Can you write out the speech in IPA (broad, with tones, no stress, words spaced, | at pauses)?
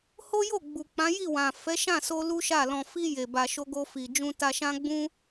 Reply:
ho˦jo˦˨ ɡ͡bu˨k͡pã˨˦ ji˦˨wã˨ fɛ˨˦ʃã˦˨so˧ lu˦ ʃa˦˨lɔ̃˧ fi˧ je˨ba˨ʃo˧ɡo˧ fi˨d͡ʒũ˧ ta˧ʃã˦ɡ͡bũ˦